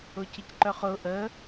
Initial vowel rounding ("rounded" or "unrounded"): rounded